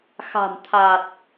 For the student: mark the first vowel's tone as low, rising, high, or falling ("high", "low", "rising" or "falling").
low